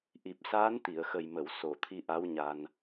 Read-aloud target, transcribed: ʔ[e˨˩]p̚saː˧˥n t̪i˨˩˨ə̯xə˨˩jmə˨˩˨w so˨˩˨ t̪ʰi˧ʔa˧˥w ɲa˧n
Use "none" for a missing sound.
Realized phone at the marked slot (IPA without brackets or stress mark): i˨˩